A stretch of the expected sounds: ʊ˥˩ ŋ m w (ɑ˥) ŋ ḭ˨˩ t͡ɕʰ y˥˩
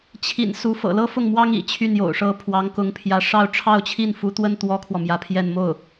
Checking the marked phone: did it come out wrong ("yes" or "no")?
no